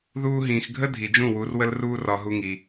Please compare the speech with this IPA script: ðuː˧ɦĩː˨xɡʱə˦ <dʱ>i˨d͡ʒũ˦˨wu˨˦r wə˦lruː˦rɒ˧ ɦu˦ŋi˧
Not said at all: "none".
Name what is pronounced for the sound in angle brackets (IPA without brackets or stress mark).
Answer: dʱ